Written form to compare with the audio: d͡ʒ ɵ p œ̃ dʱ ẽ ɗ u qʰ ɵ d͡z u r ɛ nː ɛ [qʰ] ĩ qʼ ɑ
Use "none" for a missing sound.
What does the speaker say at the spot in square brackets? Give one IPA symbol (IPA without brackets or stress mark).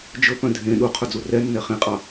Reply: χ